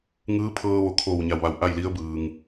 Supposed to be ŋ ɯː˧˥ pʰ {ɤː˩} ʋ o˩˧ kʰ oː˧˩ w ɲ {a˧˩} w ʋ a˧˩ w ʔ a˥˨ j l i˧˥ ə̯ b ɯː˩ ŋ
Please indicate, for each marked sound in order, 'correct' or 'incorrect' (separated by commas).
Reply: incorrect, correct